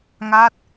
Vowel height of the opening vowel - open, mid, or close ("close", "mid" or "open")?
open